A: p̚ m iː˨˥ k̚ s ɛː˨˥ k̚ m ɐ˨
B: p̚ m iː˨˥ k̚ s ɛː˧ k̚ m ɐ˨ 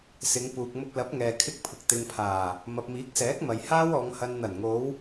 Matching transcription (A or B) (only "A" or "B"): A